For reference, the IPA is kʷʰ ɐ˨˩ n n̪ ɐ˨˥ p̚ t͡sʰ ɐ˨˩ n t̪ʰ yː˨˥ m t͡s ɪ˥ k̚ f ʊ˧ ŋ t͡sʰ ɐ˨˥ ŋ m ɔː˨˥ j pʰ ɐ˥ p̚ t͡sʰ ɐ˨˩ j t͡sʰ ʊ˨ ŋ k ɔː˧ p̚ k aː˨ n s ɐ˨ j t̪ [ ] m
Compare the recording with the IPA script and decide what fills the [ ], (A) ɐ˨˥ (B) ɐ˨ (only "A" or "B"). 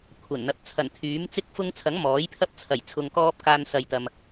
B